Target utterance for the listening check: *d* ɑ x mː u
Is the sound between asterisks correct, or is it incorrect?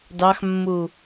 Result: correct